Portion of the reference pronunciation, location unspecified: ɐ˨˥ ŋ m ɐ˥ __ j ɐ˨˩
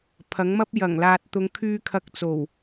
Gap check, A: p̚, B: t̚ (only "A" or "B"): A